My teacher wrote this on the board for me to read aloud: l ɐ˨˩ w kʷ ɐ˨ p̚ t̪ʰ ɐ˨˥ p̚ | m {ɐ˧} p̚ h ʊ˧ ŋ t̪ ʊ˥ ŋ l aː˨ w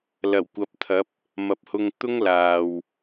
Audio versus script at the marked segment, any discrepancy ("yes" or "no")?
yes